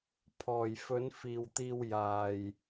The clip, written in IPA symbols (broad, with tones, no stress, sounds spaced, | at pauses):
pʰ ɔː˨ j f ɵ˨˧ n f iː˨ w t̪ iː˧ w j aː˧ j